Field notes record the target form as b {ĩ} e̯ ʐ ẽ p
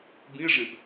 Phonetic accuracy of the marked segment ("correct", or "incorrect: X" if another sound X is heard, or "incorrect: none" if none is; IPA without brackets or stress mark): correct